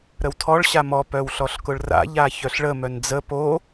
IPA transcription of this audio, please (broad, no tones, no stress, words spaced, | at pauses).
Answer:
ɾəwtʰɔɭ ɕamɔ pœwɬɔɬkʊɭra̰ ʎaçœɬɭə mœnd͡zə po